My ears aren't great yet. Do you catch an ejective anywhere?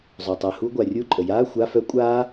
yes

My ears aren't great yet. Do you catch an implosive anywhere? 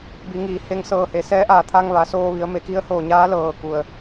no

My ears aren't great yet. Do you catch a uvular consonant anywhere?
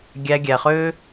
yes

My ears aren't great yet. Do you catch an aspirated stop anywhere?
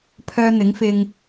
yes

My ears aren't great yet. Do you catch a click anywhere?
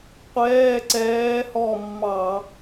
yes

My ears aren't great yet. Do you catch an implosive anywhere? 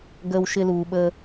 yes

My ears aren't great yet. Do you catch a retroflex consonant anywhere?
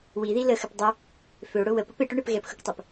yes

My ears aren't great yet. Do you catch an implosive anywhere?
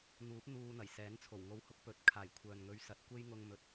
no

